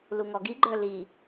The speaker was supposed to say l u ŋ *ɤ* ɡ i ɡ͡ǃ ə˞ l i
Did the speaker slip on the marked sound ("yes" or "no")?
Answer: yes